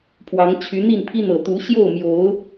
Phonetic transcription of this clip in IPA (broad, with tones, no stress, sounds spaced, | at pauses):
pʰ w ɑ˨˦ ŋ t͡ɕʰ y˨˦ n̪ i˥˨ n pʰ i˦ n̪ ɤ˨˩ t̪ u˨˦ ɕ j o˥˨ ʊ̯ m j o˨˦ ʊ̯